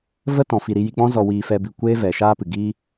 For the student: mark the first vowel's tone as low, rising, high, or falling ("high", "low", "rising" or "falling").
high